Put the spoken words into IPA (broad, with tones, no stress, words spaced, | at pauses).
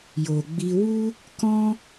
jo˨ɡ͡bi˧ wu˦ | kɔ̃˦